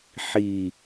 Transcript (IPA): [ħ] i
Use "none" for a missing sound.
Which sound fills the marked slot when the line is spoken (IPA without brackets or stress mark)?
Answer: ħ